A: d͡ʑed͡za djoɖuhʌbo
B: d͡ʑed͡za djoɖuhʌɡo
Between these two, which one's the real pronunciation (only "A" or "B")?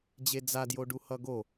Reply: B